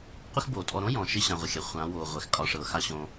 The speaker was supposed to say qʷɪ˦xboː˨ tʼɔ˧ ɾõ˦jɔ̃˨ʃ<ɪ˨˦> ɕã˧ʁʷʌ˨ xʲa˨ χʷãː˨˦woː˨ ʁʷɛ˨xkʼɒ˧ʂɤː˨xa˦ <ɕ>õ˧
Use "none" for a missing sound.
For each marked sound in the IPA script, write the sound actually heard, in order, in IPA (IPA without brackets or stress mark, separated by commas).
ɪ˧, ɕ